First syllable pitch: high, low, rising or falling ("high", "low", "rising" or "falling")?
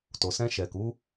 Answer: low